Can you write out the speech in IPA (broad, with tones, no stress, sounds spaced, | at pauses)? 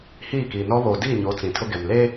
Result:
h iː˦˨ k iː˨ n ɔ˦ β o˨ d iː˦˨ ɲ o˨˦ t͡s ĩ˨ tʰ ʊ˦ ɡ ɛ˨ m l eː˦